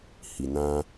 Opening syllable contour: low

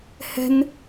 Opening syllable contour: high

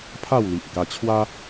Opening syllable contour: falling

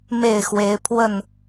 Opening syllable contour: falling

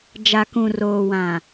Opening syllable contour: low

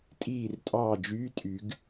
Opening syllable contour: falling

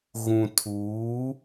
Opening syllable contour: low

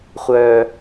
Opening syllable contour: high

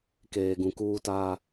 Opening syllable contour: low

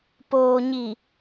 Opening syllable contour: low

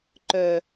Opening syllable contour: low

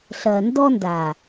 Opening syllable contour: low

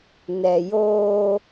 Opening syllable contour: low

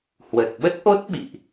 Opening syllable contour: low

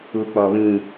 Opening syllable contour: high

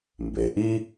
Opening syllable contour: low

